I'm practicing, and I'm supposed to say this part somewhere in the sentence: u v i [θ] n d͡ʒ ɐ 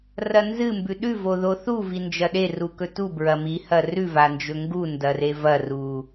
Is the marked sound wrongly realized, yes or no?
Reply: yes